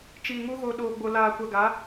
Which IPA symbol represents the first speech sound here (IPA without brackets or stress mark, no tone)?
t͡ʃ